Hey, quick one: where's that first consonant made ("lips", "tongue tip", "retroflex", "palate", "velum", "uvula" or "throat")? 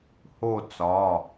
throat